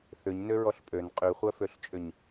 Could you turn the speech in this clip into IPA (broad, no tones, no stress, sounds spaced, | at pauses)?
θ ʏ ɲ n ø ɹ ɔ ɬ pʼ ø n qʼ y χʷ œ f ø ɬ t͡ʃʼ ʏ ɲ